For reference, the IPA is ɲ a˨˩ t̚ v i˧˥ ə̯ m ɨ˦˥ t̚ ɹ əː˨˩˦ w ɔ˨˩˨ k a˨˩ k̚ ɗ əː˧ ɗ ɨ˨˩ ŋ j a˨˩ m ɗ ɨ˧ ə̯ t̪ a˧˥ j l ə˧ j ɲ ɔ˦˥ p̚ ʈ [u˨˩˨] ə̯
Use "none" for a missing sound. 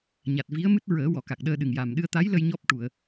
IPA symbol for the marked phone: u˨˩˨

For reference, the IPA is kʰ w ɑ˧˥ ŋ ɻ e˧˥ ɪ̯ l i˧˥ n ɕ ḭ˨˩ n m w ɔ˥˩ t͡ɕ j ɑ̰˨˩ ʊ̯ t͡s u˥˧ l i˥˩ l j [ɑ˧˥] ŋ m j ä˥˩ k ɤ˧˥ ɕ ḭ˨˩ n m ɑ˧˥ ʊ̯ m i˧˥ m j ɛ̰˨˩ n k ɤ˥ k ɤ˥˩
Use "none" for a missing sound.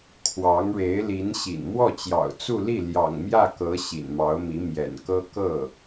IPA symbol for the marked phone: ɑ̰˨˩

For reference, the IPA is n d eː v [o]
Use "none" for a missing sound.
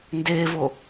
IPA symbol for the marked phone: o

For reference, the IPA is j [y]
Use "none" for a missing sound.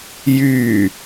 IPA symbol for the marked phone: y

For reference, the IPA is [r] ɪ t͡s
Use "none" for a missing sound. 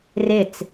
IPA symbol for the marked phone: r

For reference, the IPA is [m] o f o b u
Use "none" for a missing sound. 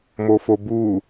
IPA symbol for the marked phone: m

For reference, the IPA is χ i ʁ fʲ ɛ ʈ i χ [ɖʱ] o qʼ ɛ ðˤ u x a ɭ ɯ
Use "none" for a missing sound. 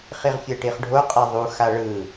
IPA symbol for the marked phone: ɖʱ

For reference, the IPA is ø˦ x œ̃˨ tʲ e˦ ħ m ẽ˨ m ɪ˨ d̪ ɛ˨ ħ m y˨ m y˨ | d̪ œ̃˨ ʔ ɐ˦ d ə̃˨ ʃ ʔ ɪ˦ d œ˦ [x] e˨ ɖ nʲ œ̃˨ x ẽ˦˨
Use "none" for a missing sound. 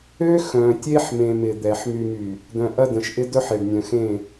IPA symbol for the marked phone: ħ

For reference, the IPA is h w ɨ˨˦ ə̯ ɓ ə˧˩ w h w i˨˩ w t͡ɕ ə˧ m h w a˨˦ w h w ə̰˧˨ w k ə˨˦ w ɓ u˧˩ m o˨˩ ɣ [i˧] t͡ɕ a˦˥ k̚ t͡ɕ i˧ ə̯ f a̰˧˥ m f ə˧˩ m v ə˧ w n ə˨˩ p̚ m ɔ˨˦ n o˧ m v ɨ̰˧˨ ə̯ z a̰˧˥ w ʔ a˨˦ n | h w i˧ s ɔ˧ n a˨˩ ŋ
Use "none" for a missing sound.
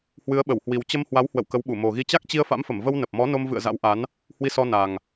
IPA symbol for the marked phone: i˧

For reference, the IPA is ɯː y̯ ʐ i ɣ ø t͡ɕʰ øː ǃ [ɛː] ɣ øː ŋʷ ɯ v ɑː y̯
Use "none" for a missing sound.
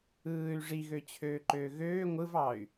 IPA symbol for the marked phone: øː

